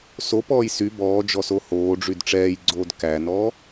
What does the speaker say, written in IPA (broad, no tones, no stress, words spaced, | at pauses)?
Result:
sopɔːj sy bɔːd͡ʒɔso hoːɖ͡ʐyd ʈ͡ʂɛːjɡ͡ǀoːd kænɔː